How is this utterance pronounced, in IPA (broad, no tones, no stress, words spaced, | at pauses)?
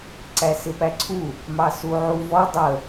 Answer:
ǀæsɪpæǀʰu | mɑsuʕuvɔ dˤə